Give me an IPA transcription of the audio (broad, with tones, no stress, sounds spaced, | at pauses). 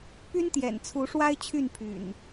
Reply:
p y˦ n t̪ j ɛ̰˨˩ n t͡sʰ u˨˦ ʂ w a˦ ɪ̯ t͡ɕʰ y˥˨ n pʰ y̰˨˩ n